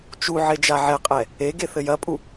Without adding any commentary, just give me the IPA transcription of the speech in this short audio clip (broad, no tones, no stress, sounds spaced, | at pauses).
t͡ʃ u ʕ e d͡ʒ a ʕ ɛ qʼ ɛ | e ɡ e θ ɘ j ɐ pʼ u